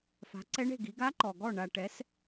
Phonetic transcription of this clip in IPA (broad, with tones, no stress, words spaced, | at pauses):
fa̤˨˦ǀɛ˦˥ɳe̤˦˨ ɡi˨˦ ɡa˦˥ǃɔ˨ɡɔ˦˨ ɳa˨ʈɛ˨˦s